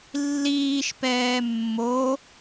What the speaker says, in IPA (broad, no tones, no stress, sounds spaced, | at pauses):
lː iː ʃ p ɛː mː o